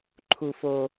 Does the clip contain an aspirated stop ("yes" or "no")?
yes